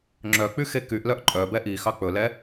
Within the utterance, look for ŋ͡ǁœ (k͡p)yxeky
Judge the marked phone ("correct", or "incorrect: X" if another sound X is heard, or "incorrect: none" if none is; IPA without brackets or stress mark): correct